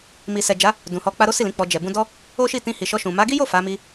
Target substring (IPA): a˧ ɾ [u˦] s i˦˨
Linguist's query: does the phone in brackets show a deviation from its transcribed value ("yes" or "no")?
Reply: yes